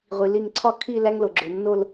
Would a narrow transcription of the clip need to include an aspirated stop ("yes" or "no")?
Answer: yes